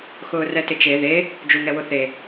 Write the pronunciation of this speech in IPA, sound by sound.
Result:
x ʊː r ɛ t ɪ t͡ʃ e ð e | d͡ʒ u ŋ ɛ w ʊ θ e

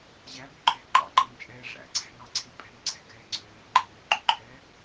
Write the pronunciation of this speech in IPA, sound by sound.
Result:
ʑ æ b ø ǃʰ ɛ̤ ǃ ɑ̰ ǃ ɛ ŋ t͡ʃʼ ɛː ʐ æ̰ ǀʰ æ̤ ŋ ɑ ǀʰ e pʼ ɛ̤ ŋ ǀʰ ɛ̤ ɡ ɛː ŋ͡ǀ øː j ŋ͡ǃ e ŋ ɛ ǃ y ǃʰ ɛː

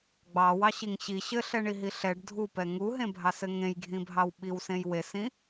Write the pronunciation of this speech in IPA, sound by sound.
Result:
ɡ͡b ɑ w ɑ ɕ i ŋ ɕ i ɕ ɘ ɬ ɛ ɳ i ɦ i ɬ ɛ ɖ dʱ u p ɛ ŋ u ɦ ẽ bʱ ɑ s ɘ ŋ ẽ j ɡʱ ĩ bʱ ɑ w ɓ i w s ẽ j w e s ĩ

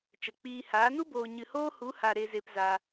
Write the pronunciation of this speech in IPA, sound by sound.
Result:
t͡ʃ ə˨ k͡p iː˧ h aː˨˦ n u˦ b oː˨ ɲ ɨ˨ h oː˦ h u˨˦ h a˨ ɾ e˨ z e˨ p z a˧

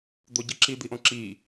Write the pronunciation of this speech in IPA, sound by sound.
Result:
d̪ o ɟ ɯ ǁ i d̪ i ʔ õ ǁ i

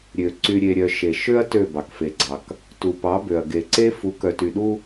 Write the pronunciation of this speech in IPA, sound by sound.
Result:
ɾʲ ø˨ ǀ y˨ ɾʲ e˨ ɾʲ œ˨ ʃ e˨ ʃ ø˦ ɐ̯ t ø˦˨ b ɑ˨ k f e˨ ɡ͡ǀ ɑ˨ k | t u˨ p ɑ˨˦ b ø˨ ɐ̯ ɡ e˨ ǀ e˦ f u˨˦ k œ˨ t y˨ ɗ u˦

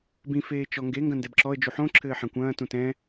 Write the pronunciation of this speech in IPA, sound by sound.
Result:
b ĩ f eː t͡ʃ ɔ ŋ ɡ e ŋ ɡ ɐ̃ n d ɛ b ǁ ɔ ə̯ d͡ʒ u ħ õ ǁʰ ɘː ħ ã kʷ ɐ̃ː t ũ t ɛ̃

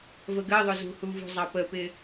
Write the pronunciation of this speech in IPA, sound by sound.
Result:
v ə ɡ ɜ ðˤ ʊ z ṳ h u v ṳ zˤ ɑ p ə p ɪ

